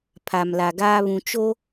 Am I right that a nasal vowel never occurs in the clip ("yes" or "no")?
no